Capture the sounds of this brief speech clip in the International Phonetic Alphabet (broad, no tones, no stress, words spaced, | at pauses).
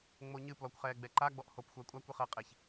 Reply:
ŋ͡moɲɨ plɔkʷχɛː ɡ͡bɛǃaɡ͡bɔʔ hop xʷəːkʷʼakʷɨχəː qʼeç